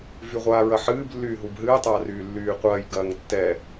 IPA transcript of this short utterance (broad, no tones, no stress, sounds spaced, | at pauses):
v y ʁʷ aː ɹ ɐ ħ ɨː b lː yː ɦ u b ɦ ɨː tˤ aː r yː lː yː qʷ ɐː j ɡ ɐː ŋ tː ɛ